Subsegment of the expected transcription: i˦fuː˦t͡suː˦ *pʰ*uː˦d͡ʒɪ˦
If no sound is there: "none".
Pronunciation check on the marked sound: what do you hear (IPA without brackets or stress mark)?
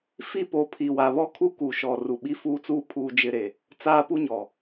pʰ